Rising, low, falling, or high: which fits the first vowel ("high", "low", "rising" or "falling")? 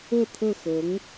falling